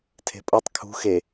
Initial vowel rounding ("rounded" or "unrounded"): unrounded